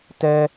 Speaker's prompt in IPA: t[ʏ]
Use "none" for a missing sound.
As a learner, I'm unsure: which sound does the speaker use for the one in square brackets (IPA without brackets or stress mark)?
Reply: ɛ